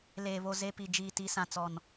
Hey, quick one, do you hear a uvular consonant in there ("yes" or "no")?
no